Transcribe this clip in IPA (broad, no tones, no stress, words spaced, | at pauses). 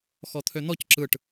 xɔt̪ʰøn̪ɔc ǁɯʈ